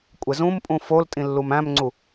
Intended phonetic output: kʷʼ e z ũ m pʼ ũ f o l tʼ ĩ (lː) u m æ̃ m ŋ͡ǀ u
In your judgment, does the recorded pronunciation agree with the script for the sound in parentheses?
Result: yes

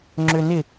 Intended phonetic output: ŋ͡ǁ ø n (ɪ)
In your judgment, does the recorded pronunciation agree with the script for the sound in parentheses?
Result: yes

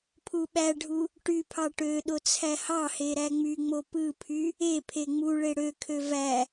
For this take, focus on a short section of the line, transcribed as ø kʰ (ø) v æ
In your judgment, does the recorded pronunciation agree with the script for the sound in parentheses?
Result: yes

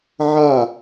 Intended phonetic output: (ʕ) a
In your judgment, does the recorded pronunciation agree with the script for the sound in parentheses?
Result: yes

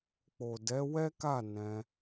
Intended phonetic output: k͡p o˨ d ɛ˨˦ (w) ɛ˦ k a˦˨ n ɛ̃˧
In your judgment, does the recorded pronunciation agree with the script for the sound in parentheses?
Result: yes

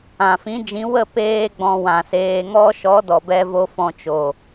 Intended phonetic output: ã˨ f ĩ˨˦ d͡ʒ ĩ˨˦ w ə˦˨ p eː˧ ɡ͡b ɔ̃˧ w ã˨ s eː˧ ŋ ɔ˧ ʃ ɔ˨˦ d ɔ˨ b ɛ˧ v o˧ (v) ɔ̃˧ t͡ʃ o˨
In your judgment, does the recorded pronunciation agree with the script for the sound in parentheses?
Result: no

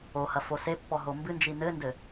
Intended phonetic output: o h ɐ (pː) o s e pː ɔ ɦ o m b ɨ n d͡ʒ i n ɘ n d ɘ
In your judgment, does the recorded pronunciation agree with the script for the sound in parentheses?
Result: no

